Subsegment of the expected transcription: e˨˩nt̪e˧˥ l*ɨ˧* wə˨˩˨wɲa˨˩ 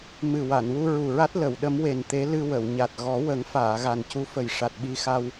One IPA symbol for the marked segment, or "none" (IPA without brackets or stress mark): ɨ˧